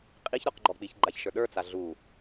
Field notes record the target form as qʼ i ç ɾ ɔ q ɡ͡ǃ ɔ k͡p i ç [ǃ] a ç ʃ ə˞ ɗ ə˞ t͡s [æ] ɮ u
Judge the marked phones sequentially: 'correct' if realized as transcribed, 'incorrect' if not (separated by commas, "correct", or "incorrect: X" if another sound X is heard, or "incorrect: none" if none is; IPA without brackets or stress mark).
incorrect: ɡ͡ǃ, incorrect: a